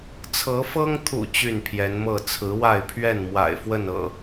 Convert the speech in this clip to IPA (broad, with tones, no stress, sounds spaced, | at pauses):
t͡sʰ ɤ˨˦ f ɤ˦ ŋ t̪ʰ ṵ˨˩ t͡ɕ y˥˨ n pʰ j ɛ˨˦ n m ɤ˥˨ t͡sʰ ɹ̩˨˦ w a˥˨ ɪ̯ pʰ ɥ ɛ˥˨ n m w a̰˨˩ ɪ̯ f w ə˥˨ n ɤ̰˨˩